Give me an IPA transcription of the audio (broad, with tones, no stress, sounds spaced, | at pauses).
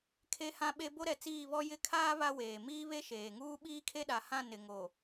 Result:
kʰ e˦ h ã˦ ɓ e˦ b o˦ ɾ ɛ˨ t͡s iː˦˨ β ɔ˦ j ɪ˦˨ kʰ aː˦ β a˦ w eː˨ m iː˦ β e˦ ʃ eː˨ ŋ uː˦ ɓ iː˦ kʰ e˦ ɗ a˨ h ã˦˨ n ɪ˨ ŋ o˨